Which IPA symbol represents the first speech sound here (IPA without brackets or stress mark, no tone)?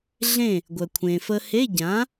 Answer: ɮ